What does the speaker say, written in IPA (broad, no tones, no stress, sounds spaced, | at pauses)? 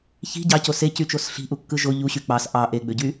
ç i̤ ɟ ɑ c o s e c y t͡ʃ o s ɬ i̤ ʔ u kː ɯ ʒ o ʎ u ɕ y k͡p ɑ s ʔ ɑ ʔ e ɡ͡b ø ɟ y